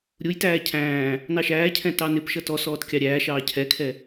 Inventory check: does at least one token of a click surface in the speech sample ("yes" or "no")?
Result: no